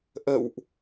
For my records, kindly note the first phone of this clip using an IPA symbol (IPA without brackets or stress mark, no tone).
ʔ